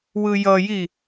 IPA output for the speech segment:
w ɯ j ʌ j i

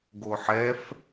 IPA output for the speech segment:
ɡ o ħ ɛ f

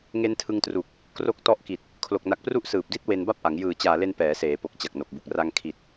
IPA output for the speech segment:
ŋ e˦˥ n tʰ ɯ˧ ŋ t r u˨˩ k̚ | k r o˦˥ k̚ t ɔ˦˥ ʔ k i˨˩ t̚ | kʰ l o˨˩ k̚ n a˨˩ k̚ p r u˦˥ ʔ s ɯː˨˩ p̚ d i˦˥ t̚ w e˧ n b a˥˩ p̚ ʔ a˩˦ ŋ j ɯː˨˩ t͡ɕ aː˨˩ l e˧ n p ɛː˩˦ s eː˩˦ p o˨˩ k̚ t͡ɕ a˨˩ k̚ n o˨˩ k̚ b u˨˩ k̚ r a˧ ŋ kʰ i˨˩ t̚

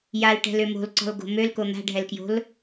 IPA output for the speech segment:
j a l ʈ ɛ̤ l ø m o̤ l ǀ ɔ̤ l ɡ o̤ m ø l k o n̪ a̤ ɖʱ ɛ l k j o̤ l

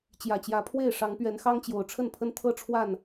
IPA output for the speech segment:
t͡ɕ j ä˨˩ t͡ɕ j ä˨˦ pʰ w e˥˨ ɪ̯ ʂ ɑ˨˦ ŋ p ɥ ɛ˨˦ n x ɑ˦ ŋ t͡ɕ j o˨˩ ʊ̯ ʈ͡ʂʰ ə˥˨ n pʰ ə˦ n t̪ʰ ɤ˥˨ ʈ͡ʂʰ w a˥˨ n

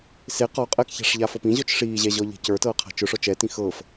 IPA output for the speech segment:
s e q ɔ qʼ ɛ k ç a̤ ʂ ʎ a f ɤ p ĩ ʑ ɔ t͡ʃ ʂ iː ʑ ɛ ʑ ɔ ʎ e̤ c ə˞ t ɤː qʰ a̤ t͡ʃ ʊ ʂ ɔ t͡ʃ ɛ t ĩ x ɤː f

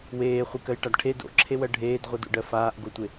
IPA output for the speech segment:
w eː χʷ i k ɜ j ʈ a d ʈʰ e d o̰ ǁʰ e w ɜ ɖʱ eː d ʁʷ i d o̰ ɖ ɜ f aː ʔ ɡ o tʷ e

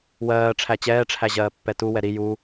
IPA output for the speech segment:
w ɜː ʈ͡ʂʰ æ t͡ɕ ɛː ʈ͡ʂʰ æ ʑ ɜː pː ɛ t u w ɛ ɾ i j u

